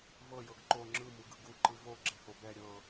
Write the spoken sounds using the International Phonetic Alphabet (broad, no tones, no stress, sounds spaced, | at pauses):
v ɤ j ɤ ɡ ǃ o ŋ͡ǁ ɯ m u ɡ ɯ ɡ u ǃ ɯ v o ɡ͡ǁ ɛ h o b ɛ ɾʲ ɤ